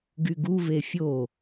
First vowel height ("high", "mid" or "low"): high